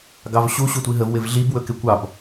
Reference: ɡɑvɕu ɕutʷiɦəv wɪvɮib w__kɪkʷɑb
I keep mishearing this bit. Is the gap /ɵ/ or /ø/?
ɵ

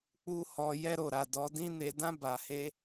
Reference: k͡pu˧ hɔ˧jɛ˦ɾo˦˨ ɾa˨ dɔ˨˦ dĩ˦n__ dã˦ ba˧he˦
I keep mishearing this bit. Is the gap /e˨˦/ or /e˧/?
e˧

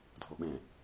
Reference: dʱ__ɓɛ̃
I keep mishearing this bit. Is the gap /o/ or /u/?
o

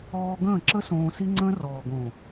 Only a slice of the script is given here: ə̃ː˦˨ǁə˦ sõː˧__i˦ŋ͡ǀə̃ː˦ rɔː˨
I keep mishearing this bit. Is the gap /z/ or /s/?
s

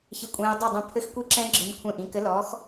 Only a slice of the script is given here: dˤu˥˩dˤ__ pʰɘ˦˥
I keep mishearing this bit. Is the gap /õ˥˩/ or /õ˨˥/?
õ˥˩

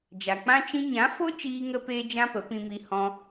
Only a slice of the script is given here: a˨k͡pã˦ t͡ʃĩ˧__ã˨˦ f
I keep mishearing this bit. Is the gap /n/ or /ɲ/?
ɲ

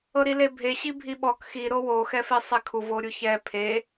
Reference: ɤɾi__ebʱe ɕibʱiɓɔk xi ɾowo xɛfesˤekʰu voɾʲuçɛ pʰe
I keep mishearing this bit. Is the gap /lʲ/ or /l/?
l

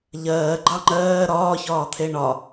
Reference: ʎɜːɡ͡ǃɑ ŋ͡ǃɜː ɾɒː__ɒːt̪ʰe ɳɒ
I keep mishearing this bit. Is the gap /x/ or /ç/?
ç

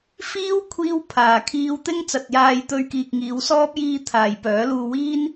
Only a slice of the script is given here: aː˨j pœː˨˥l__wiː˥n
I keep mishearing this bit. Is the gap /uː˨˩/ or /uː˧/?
uː˧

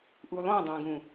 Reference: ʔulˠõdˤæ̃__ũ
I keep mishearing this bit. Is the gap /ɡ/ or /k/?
ɡ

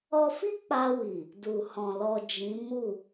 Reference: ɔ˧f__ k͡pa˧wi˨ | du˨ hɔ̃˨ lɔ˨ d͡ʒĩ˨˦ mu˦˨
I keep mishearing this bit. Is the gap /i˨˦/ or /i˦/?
i˦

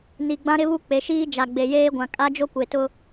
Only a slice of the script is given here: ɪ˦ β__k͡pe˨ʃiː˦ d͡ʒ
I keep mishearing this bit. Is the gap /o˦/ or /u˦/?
u˦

